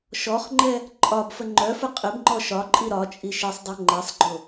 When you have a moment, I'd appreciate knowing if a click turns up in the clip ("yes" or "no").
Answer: yes